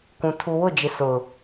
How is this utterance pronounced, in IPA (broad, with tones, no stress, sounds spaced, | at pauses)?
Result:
kʷ ũ˨ tʰ u˨ w ʊ˦˨ d͡ʒ ɪ˨ s ʊ˨